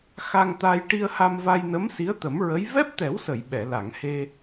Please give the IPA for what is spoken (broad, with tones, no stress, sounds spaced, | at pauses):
x a˧ ŋ t̪ a˧ j ʈ i˧ ə̯ h a˧ m v a˧ j n ə˧˥ m s i˧˥ ə̯ t̪ ə˨˩˦ m ɹ ə˧˥ j v ɛ˦˥ p̚ t̪ ɛ˨˩˦ w s ə˨˩˨ j ɓ ɛ˨˩˨ l a˨˩˨ ŋ h e˧